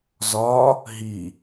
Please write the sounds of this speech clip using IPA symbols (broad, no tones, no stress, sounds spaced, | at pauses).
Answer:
z ɒ | ɦ i